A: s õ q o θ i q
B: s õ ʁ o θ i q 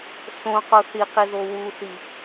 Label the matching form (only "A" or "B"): A